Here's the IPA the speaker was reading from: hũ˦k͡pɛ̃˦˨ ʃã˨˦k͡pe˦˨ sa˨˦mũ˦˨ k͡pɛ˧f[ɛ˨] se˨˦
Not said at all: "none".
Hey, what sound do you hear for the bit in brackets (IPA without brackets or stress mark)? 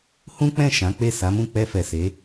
ɛ˨